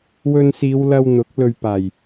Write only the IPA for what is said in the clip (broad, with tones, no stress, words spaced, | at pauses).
wɵ˧nsiː˨˧wlɐ˧w n̪ʊ˨˥k̚ lɵ˨ɥpaː˨˩j